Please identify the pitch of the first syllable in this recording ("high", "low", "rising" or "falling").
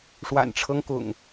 low